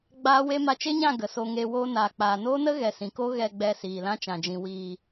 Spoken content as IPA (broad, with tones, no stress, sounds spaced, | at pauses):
ɡ͡b aː˦ w e˦ m a˧ t͡ʃ e˦ ɲ ã˦˨ ɡ ə˨ s o˧ ŋ e˧ w oː˧ n aː˨ k͡p aː˨ n oː˦ n ə˦ ɣ ɛ˨ s ĩ˨ k o˦ ɣ ɛ˨ ɡ͡b ɛ˨ s iː˨ l ã˦ t͡ʃ ã˨ d͡ʒ ĩ˨ w iː˨